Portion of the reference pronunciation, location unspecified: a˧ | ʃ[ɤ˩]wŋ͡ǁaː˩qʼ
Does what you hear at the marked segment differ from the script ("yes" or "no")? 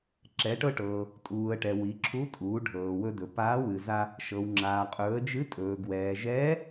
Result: no